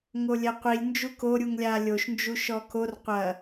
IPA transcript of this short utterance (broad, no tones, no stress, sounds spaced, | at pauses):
ŋ o lʲ ɛ qʷ i lʲ n d͡ʒ u k o ɾʲ u ŋ lʲ a lʲ o ʃ n d͡ʒ u ʃ ɔ k o r qʷ ɐ